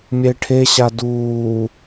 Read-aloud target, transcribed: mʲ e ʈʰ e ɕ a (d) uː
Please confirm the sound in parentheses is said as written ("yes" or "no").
yes